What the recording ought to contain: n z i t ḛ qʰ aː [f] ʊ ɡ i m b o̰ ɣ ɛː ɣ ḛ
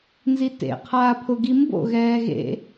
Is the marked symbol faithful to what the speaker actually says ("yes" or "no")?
no